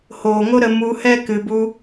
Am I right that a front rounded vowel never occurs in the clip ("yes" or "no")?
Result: yes